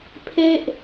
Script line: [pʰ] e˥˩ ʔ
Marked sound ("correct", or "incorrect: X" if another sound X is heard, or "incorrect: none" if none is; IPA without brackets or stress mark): correct